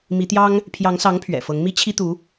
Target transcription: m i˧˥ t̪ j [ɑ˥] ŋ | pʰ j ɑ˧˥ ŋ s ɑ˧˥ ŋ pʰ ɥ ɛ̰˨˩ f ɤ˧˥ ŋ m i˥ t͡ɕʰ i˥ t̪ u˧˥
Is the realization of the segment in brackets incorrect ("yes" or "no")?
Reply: no